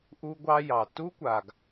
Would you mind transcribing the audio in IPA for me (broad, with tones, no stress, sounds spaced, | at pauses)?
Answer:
ʔ u˦ ɡʷ ɑ˦ j ɑ˨ t u˦ kʷ a˨ ɡ